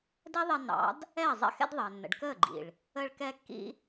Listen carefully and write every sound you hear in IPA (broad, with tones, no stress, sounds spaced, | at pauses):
d ɛ˦ ðˤ ɛ˧ nː ɑ̰˨˦ d | ɛː˦˨ zˤ ɛ̰˦ x ɛ̰˦ d ðˤ əː˨ nː ə̰˨ ɖ k əː˦˨ ɡ͡ǃ ḭ˨ ɭ | ə˧ ɭ k ɛ˧ kː ḭ˦